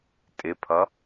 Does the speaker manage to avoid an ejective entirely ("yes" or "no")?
no